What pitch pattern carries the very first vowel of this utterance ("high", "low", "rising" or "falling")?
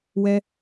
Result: high